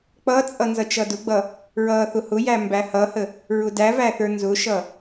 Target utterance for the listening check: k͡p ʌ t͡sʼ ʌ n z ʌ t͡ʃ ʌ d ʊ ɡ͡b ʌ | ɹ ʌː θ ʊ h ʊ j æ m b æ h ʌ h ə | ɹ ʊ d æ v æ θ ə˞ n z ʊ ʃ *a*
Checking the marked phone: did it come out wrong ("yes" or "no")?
yes